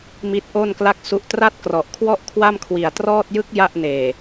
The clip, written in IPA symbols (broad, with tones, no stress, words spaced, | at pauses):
mi˦˥t̚ʔo˥˩nkla˥˩k̚su˦˥ʔ tra˥˩t̚krɔ˨˩ʔkʰwɔ˥˩ʔ kʰwa˥˩mkʰwi˨˩a̯trɔː˥˩t̚ jɯ˦˥k̚ ja˥˩ʔneː˨˩